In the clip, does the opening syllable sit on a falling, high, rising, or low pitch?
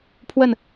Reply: falling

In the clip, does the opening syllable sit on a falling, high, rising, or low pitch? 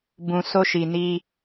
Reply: low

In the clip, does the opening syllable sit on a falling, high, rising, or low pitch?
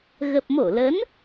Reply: low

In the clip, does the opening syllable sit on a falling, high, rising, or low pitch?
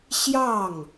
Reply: falling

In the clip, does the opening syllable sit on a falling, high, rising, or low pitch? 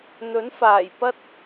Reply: rising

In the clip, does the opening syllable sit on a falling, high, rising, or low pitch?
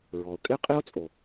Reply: low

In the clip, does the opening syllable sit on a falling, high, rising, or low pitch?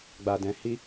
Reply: low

